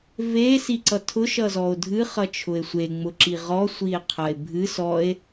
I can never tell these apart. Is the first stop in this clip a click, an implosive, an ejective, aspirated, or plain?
click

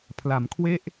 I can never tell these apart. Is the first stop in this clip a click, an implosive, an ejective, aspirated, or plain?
aspirated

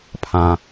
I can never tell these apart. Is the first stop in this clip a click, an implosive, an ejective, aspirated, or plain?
aspirated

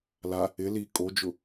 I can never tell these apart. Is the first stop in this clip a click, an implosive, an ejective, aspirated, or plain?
ejective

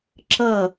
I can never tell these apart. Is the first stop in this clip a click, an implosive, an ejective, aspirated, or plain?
click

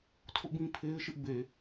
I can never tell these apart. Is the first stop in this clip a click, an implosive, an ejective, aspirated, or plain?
aspirated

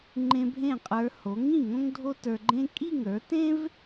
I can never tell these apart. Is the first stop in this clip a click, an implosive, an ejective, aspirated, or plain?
click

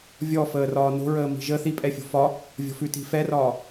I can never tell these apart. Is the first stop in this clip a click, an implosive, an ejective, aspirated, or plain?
ejective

